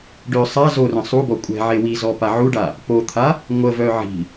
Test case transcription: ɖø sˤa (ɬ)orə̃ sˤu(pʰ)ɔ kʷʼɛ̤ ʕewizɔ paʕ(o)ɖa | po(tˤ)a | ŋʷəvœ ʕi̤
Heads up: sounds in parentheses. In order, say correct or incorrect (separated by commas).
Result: incorrect, incorrect, incorrect, incorrect